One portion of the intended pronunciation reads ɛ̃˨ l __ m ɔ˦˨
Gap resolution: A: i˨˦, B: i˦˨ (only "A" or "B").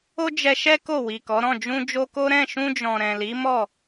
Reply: A